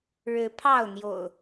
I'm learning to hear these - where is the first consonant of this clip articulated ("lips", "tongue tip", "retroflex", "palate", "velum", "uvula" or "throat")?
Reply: retroflex